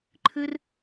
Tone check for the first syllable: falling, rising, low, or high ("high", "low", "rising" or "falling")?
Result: high